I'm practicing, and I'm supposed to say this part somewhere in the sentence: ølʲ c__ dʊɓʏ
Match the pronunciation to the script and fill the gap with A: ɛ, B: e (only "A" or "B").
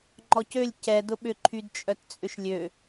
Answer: A